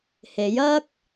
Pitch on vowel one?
rising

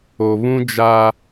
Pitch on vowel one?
low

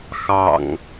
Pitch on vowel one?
low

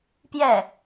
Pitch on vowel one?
falling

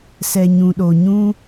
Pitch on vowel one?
low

